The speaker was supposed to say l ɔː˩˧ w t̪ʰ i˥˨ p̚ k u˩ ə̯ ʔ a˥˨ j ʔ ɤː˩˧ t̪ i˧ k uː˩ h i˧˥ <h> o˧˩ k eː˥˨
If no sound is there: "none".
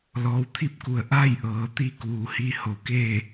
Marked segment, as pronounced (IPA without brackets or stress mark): h